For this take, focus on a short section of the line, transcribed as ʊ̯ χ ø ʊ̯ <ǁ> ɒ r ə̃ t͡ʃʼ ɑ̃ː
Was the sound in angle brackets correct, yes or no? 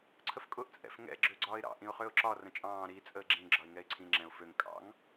yes